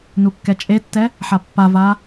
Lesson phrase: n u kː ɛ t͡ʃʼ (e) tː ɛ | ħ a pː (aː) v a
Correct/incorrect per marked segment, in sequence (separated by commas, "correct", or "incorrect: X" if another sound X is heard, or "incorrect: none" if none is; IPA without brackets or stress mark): correct, incorrect: a